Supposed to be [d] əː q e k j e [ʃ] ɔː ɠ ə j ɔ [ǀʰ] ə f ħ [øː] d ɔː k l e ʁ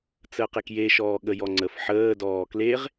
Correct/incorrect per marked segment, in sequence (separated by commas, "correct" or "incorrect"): incorrect, correct, incorrect, incorrect